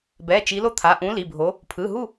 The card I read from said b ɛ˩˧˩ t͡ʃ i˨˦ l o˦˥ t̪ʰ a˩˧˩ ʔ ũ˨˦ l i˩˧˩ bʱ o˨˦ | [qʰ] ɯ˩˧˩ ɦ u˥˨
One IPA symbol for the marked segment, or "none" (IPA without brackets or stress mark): pʰ